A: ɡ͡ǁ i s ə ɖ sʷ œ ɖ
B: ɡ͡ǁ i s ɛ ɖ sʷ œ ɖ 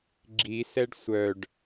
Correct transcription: B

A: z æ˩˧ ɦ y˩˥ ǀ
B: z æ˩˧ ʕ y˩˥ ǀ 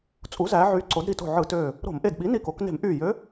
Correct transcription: B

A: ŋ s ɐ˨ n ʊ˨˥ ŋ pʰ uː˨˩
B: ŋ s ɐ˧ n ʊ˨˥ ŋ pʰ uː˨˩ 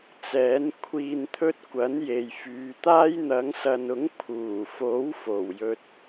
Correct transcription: A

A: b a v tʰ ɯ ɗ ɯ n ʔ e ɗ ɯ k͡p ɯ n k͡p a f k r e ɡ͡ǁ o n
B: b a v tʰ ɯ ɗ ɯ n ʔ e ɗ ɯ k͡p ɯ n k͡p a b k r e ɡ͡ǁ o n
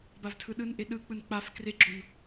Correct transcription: A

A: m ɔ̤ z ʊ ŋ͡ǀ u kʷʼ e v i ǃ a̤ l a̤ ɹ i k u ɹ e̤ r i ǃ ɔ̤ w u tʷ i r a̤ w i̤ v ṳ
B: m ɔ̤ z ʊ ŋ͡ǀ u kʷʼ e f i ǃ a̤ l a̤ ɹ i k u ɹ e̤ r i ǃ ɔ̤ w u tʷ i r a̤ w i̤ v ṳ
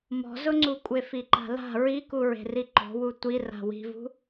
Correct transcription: B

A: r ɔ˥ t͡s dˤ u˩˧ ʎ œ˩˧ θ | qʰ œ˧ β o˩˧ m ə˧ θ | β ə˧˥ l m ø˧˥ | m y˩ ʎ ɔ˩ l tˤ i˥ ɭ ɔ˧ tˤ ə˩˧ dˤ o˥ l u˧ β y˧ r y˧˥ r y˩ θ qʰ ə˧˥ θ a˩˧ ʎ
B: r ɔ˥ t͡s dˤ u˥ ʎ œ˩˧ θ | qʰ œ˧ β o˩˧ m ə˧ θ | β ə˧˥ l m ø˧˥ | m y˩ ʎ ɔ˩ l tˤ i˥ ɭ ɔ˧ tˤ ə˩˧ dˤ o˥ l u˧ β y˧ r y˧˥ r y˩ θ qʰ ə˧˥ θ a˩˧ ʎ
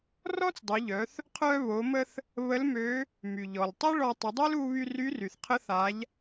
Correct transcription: A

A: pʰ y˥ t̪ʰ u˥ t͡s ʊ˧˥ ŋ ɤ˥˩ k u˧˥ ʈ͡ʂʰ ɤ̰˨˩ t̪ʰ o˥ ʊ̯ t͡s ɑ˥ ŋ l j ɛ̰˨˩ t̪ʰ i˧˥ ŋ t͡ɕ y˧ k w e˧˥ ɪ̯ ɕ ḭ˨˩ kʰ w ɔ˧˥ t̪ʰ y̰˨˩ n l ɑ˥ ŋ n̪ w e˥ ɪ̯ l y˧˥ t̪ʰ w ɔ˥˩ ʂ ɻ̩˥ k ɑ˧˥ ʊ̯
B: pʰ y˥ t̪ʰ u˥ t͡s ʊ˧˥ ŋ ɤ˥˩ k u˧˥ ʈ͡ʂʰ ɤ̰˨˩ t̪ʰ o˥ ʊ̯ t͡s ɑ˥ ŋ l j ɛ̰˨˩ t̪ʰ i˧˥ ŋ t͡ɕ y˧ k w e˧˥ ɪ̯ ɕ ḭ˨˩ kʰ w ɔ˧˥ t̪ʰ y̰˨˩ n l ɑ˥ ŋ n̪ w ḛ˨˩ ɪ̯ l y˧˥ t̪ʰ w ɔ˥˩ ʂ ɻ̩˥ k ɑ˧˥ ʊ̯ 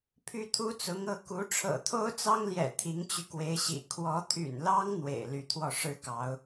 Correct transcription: B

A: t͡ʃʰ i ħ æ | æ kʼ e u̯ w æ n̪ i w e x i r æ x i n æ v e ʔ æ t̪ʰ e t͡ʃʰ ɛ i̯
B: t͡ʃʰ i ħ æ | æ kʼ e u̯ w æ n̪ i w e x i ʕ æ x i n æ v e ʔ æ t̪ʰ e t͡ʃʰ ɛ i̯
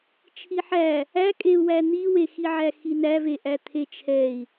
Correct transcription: B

